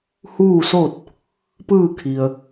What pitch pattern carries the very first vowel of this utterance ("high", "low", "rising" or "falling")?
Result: falling